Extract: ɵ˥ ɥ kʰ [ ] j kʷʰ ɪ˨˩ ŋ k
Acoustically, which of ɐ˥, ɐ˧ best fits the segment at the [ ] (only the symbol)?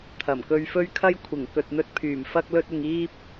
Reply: ɐ˥